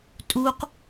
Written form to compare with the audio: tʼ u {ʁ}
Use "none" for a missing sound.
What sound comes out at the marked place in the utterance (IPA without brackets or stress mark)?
q